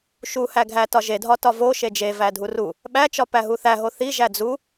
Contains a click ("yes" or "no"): no